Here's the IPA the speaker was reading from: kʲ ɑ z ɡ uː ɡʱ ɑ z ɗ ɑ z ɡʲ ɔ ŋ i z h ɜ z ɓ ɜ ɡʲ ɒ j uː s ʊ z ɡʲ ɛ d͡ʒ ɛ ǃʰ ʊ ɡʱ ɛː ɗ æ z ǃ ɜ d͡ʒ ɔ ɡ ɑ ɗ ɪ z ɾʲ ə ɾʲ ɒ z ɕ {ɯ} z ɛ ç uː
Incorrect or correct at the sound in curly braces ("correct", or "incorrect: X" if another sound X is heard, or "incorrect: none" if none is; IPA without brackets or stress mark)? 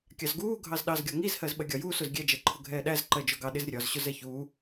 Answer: incorrect: ʊ